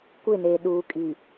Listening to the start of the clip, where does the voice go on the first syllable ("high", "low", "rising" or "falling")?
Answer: falling